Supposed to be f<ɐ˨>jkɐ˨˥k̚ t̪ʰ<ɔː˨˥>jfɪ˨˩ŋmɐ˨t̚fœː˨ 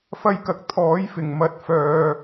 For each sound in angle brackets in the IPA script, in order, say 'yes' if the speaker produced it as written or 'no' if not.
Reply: no, yes

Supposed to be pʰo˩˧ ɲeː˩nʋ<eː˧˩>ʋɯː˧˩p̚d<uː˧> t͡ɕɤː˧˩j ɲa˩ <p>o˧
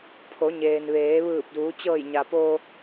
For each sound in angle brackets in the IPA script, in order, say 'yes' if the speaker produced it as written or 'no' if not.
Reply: no, no, yes

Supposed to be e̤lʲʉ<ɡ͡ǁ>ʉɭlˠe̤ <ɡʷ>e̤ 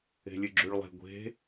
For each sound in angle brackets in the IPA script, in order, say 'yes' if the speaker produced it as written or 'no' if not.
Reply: yes, yes

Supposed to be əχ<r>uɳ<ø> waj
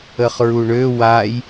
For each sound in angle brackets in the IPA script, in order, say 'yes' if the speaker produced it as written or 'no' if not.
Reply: no, yes

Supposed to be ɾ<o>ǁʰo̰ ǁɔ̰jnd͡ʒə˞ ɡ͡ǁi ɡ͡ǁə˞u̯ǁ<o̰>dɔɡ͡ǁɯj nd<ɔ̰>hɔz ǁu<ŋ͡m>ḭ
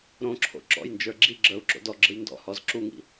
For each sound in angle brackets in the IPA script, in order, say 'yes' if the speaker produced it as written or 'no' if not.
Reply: no, yes, yes, no

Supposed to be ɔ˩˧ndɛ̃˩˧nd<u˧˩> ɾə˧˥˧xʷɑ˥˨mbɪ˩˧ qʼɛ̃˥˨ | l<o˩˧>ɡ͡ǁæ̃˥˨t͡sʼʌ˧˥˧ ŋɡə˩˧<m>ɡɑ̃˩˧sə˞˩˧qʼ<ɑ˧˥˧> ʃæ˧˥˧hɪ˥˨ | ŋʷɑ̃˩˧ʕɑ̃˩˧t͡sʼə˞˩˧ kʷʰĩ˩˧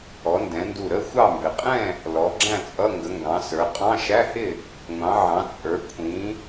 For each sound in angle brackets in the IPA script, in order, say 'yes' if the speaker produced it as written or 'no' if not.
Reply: yes, no, no, no

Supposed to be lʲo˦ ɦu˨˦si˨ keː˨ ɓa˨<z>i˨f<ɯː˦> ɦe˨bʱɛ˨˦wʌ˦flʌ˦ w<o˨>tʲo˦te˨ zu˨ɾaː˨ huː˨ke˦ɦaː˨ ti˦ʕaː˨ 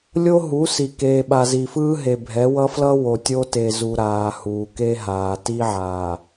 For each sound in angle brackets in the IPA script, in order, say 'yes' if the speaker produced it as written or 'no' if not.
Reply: yes, yes, yes

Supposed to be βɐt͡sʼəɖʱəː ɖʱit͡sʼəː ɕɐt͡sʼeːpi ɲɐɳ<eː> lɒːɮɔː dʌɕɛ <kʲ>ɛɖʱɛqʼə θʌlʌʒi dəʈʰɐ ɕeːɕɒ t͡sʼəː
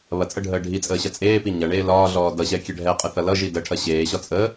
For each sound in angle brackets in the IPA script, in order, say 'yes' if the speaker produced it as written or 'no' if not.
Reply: yes, yes

